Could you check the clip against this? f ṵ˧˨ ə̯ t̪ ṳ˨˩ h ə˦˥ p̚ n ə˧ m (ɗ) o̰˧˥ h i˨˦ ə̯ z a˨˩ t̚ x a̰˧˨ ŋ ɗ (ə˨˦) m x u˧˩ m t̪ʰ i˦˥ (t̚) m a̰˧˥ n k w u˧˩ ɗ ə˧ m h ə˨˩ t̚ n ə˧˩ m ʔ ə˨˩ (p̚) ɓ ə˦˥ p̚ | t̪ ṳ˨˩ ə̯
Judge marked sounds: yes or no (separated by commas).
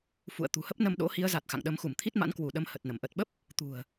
yes, yes, yes, no